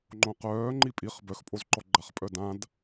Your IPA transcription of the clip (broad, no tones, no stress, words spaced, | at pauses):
ŋ͡ǃõqœː ŋ͡ǃipʼiχ bœxpʼozǃɔ ɡ͡ǃaχpʼœdãd